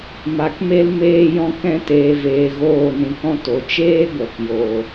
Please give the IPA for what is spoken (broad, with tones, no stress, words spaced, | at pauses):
ma˨kme˦l meː˧jɔ̃˧ kɛ̃˧teː˨veː˨ ɣoː˦˨nĩ˧kɔ̃˦ to˨t͡ʃeː˦ɡʷɛ˨k jo˨